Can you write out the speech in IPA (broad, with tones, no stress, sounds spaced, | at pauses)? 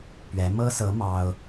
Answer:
p ɥ ɛ˧˥ m ɤ˥ s ɤ˧˥ m ɑ˥ ʊ̯